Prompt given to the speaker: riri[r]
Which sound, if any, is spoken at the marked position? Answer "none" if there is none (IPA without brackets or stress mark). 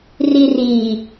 none